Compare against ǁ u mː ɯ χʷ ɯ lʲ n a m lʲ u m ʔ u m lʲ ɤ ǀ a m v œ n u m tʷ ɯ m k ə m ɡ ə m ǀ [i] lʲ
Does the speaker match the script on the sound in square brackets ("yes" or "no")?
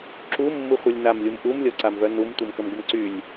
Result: no